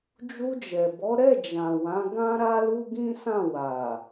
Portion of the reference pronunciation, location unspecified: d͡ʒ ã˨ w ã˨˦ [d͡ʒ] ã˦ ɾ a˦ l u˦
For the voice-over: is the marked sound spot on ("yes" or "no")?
no